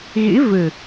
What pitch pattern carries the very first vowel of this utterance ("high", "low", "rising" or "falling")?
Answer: rising